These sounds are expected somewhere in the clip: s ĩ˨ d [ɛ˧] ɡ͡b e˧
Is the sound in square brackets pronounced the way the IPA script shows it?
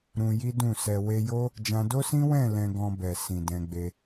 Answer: no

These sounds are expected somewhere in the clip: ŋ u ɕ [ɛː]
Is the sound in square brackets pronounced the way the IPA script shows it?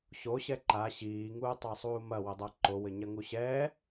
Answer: yes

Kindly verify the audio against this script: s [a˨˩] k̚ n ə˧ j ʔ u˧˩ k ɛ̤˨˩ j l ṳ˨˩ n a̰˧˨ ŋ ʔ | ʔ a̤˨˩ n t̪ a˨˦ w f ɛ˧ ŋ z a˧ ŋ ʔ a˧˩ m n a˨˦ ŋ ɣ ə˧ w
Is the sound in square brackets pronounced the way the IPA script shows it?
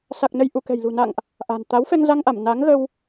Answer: yes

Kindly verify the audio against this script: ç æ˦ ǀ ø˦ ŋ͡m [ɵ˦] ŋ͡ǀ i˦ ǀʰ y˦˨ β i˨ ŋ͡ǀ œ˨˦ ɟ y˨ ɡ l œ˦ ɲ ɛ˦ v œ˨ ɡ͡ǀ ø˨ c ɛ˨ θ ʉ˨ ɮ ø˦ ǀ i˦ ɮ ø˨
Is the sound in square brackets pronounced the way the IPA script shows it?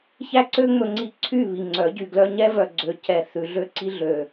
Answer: yes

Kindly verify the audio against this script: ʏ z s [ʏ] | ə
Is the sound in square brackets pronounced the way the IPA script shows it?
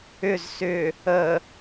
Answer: yes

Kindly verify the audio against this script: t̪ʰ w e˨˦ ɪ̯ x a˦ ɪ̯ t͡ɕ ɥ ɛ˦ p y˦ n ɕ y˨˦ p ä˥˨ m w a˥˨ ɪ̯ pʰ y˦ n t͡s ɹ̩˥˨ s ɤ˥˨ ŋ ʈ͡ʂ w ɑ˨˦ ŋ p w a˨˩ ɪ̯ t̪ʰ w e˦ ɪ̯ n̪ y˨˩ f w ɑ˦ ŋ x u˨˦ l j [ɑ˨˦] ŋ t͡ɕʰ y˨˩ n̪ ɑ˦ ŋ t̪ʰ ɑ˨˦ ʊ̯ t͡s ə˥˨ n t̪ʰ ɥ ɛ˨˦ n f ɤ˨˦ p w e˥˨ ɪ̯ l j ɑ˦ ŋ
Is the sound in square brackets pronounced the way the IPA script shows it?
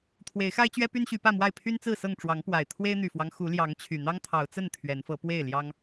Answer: yes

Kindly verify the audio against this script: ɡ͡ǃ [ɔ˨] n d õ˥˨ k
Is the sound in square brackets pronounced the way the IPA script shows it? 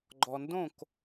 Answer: yes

